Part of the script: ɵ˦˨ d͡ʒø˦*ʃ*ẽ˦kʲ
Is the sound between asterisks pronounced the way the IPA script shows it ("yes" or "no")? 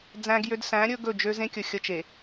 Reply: no